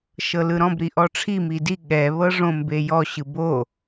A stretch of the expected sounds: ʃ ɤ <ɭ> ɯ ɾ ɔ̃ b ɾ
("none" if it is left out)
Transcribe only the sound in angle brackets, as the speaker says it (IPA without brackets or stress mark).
l